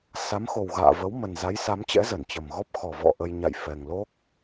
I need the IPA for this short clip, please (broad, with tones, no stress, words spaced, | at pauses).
sa˨˦mxo˨˩wɣa̰ː˧˨ və˨˦w mə˨˩nza˨˦jsa˨˦mt͡ɕɛ̰˧˥ zə˧˩nt͡ɕə˨˩mɣɔ˦˥p̚ xɔ˨˩ vɔ̰˧˨ ʔə˧j ɲa̰˧˨j fɛ˨˩ŋlo˦˥k̚